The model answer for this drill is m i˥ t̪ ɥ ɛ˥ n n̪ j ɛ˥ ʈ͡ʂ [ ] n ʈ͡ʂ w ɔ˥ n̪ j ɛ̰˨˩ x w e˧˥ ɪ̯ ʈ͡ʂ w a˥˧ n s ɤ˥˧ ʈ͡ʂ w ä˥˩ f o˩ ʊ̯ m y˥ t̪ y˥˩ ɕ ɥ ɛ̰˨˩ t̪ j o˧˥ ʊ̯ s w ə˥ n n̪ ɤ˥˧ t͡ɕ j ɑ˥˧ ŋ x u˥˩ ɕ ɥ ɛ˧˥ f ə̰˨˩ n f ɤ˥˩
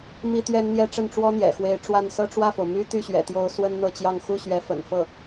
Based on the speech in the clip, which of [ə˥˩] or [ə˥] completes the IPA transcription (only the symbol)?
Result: ə˥˩